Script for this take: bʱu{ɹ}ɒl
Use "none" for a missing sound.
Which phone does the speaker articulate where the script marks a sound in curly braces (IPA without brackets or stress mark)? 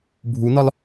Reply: n